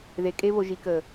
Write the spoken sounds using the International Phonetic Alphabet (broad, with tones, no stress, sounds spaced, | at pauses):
ð e˨ kʼ e˧ β o˨ ʒ i˨ k əː˨